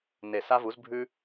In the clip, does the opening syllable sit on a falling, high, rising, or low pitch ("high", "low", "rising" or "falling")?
low